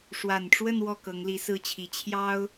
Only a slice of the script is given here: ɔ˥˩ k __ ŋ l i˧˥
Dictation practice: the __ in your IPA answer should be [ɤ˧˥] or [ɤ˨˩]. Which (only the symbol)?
ɤ˧˥